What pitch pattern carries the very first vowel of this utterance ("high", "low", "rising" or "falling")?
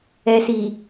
low